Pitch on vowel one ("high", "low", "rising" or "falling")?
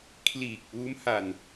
low